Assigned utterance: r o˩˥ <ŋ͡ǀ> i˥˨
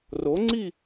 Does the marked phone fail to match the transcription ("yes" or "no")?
no